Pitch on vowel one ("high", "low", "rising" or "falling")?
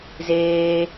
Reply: high